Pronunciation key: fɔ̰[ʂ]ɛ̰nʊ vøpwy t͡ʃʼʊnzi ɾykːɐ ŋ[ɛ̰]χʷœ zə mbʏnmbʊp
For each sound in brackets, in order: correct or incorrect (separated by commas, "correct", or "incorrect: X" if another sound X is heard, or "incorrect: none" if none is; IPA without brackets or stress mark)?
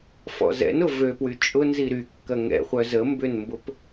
incorrect: z, correct